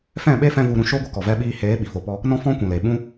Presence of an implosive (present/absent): present